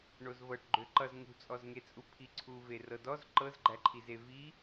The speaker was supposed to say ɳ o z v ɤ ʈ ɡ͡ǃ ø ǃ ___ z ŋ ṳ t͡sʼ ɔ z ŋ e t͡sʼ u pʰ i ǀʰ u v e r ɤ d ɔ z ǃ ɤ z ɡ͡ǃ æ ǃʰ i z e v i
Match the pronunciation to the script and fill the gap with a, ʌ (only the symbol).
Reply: ʌ